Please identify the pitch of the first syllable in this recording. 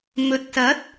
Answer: low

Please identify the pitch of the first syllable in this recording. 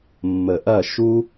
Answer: low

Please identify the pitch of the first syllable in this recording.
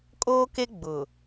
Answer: high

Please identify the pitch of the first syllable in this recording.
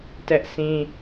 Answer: high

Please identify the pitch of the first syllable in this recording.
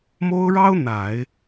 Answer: high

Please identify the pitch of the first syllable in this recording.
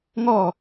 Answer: falling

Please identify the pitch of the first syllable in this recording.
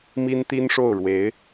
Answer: high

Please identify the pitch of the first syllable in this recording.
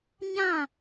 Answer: falling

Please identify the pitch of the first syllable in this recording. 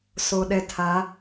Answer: low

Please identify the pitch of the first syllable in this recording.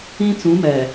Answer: high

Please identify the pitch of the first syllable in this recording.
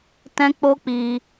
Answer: high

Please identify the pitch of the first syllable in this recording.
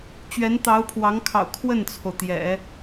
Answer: rising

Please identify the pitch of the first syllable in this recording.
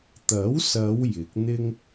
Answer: rising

